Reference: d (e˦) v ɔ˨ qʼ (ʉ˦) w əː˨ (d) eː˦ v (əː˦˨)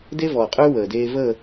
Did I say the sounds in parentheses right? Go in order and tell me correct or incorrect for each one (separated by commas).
correct, correct, correct, incorrect